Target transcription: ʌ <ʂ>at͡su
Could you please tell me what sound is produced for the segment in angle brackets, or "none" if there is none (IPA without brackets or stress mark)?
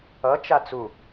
t͡ʃ